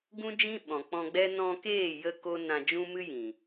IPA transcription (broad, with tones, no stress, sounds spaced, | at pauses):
ɡ ũ˦ d͡ʒ ĩ˦ ɓ ɔ̃˨ k͡p ɔ̃˧ ɡ͡b ɛ˦ n ɔ̃˧ k eː˦˨ j ə˧ k o˦ n ã˧ d͡ʒ ũ˦ m ɨ˦ j ĩ˨